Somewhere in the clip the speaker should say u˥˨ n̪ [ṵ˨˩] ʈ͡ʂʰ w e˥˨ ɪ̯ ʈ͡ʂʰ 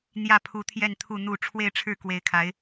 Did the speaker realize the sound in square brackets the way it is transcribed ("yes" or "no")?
no